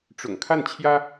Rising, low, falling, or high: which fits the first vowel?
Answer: low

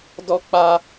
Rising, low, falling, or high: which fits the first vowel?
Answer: high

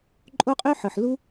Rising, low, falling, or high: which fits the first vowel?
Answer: high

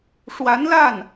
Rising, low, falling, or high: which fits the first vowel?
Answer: rising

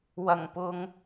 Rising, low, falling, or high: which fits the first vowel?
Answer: low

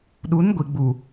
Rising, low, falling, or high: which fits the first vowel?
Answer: rising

